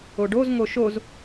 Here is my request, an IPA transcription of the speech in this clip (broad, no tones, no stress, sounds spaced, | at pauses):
o ɖ o z ŋ o ʃ o z